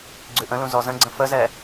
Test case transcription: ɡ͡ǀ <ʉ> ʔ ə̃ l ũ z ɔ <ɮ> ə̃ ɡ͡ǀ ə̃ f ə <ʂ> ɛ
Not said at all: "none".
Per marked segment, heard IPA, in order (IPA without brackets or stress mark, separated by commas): ʉ, z, z